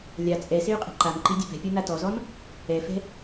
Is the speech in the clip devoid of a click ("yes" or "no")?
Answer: no